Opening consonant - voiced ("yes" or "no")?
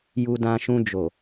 yes